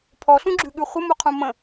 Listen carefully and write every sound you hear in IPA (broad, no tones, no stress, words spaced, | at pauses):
pʰɔɬũɡ͡ǁʉɠʉ χʷəmuqʰũ mə̃